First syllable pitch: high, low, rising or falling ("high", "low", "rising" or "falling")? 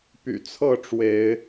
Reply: low